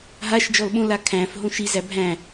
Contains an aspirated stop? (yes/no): yes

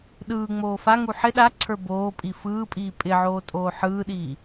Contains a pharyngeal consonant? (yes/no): yes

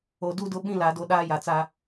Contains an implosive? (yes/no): yes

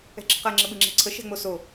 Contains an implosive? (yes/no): yes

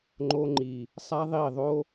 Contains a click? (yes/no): yes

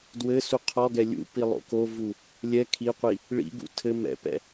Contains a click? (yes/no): no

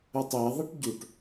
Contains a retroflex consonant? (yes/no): yes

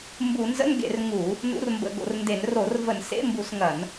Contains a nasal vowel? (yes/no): no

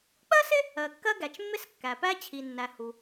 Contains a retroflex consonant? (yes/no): no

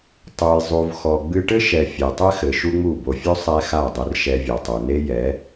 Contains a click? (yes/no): no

